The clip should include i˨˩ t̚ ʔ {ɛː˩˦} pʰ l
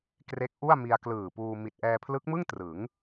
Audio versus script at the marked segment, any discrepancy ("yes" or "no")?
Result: yes